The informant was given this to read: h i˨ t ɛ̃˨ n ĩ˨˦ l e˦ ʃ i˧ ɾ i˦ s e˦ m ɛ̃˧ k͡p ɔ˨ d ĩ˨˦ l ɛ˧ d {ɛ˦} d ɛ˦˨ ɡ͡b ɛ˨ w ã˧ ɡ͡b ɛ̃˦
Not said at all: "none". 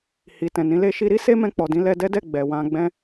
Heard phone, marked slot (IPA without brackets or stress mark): ɛ˦